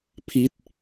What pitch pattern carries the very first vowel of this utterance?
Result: falling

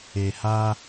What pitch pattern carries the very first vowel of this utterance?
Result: low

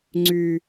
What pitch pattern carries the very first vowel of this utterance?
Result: low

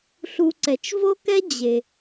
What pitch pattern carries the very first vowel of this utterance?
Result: low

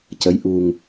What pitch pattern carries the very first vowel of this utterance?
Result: rising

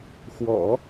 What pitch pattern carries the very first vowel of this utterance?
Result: low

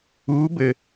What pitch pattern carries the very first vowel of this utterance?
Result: rising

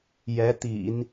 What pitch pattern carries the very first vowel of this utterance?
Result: rising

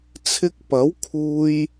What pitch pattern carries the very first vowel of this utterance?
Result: high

